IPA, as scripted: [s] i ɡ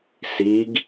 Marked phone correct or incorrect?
correct